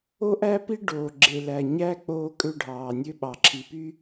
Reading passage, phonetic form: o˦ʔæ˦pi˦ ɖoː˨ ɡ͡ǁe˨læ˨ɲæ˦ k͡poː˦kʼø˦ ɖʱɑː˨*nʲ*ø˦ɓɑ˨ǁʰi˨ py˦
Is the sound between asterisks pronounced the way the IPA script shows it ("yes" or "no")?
yes